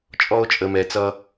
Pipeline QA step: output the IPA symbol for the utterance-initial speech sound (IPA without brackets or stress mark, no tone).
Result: t͡ʃʼ